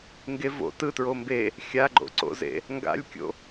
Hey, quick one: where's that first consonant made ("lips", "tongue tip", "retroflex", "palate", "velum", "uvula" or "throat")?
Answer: velum